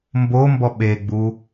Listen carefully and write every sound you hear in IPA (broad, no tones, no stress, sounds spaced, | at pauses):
m b o m b ɔ ɓ e ɡ͡b u